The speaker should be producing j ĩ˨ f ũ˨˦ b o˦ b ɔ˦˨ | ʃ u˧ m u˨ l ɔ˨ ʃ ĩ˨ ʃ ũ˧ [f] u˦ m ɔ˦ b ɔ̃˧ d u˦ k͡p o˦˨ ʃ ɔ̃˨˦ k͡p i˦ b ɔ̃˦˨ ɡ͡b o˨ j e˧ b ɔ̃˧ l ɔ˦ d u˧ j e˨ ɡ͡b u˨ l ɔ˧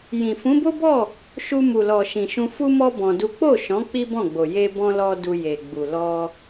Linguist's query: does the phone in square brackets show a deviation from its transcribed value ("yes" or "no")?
no